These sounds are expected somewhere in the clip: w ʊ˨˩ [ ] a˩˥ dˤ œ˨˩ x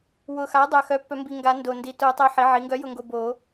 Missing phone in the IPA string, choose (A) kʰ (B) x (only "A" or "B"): B